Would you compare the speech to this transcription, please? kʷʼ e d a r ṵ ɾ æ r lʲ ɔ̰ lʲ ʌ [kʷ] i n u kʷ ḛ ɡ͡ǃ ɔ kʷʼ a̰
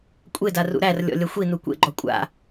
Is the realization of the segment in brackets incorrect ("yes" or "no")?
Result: yes